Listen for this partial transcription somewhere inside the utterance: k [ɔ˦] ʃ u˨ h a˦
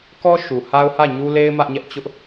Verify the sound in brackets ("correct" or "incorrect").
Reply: correct